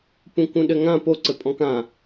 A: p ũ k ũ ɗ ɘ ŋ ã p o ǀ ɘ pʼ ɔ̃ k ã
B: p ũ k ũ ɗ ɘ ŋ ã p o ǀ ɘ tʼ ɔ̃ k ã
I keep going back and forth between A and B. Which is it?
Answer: A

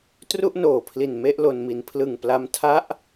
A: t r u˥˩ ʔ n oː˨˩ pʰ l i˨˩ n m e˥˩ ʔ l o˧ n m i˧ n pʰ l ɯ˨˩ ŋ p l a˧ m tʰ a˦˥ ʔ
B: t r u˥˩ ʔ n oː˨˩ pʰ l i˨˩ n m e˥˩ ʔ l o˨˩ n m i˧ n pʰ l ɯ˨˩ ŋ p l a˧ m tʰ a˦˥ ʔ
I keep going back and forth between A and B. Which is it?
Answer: A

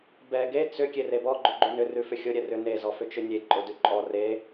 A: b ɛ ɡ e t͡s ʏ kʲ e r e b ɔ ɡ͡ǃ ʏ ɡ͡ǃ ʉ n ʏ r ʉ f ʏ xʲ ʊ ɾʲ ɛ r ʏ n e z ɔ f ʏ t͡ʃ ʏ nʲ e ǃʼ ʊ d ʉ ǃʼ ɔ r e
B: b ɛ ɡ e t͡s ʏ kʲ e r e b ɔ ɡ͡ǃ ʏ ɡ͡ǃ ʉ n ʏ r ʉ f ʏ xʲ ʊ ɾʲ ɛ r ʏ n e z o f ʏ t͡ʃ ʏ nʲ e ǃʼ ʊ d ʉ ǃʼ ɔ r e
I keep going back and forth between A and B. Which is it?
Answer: A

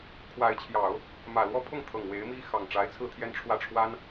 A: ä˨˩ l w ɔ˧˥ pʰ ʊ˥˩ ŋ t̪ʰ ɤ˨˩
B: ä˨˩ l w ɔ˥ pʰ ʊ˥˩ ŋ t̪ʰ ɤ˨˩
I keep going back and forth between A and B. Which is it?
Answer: B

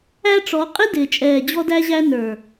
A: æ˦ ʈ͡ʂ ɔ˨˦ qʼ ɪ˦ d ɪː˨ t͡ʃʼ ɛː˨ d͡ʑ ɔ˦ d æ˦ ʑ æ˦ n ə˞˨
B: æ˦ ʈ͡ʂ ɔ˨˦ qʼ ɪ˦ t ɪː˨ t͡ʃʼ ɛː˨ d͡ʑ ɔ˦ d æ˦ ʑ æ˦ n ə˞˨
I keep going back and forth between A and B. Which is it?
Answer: A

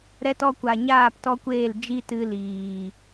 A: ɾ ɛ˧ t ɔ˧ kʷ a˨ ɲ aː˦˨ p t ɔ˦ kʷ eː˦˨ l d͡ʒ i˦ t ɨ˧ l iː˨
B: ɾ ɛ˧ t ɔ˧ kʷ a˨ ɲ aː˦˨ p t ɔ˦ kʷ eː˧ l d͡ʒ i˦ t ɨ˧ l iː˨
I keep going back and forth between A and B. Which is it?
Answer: A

